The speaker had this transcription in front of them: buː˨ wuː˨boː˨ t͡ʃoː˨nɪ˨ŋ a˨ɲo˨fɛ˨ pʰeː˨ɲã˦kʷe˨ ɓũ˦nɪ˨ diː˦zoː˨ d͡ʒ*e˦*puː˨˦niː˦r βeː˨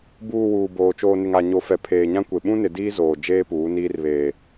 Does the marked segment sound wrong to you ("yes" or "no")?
yes